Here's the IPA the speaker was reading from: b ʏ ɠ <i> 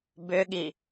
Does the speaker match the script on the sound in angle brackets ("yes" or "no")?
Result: yes